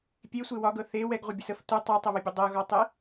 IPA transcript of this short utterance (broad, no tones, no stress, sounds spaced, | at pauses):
pʲ e sʷ e w ɒ ɡ ɤ θ e w ɛ ɡ ʁʷ ə bʲ ə s ə f tʷ ə tˤ ɛ tˤ ə β ə bʲ ə dˤ ɤ ɣ ɒ tˤ e